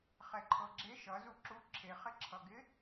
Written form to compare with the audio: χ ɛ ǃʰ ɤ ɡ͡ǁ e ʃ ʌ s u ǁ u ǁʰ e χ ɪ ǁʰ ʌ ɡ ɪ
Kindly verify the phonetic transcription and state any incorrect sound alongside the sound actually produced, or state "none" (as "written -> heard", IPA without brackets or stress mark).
s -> z